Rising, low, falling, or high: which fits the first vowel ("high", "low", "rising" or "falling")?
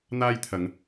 high